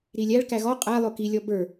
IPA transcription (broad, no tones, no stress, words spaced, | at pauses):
ɾilʲæɭkæ ɣɔ qʼæ lˠʊkilʲɔ bə˞